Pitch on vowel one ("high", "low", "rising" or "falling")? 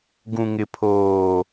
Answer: low